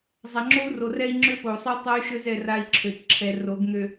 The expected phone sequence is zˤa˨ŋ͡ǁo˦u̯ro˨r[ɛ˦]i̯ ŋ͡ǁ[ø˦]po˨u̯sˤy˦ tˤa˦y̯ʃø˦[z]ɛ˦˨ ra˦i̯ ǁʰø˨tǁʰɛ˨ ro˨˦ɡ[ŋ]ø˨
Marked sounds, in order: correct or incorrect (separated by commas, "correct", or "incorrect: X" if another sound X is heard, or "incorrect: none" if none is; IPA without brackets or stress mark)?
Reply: correct, correct, correct, correct